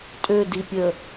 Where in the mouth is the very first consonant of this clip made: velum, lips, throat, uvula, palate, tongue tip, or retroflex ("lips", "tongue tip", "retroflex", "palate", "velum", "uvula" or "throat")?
tongue tip